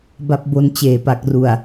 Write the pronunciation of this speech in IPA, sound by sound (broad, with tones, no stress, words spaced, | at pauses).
ba˦˥p̚bo˧nt͡ɕeː˨˩ pa˨˩k̚ru˨˩a̯